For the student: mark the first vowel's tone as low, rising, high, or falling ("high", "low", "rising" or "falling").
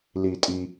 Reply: low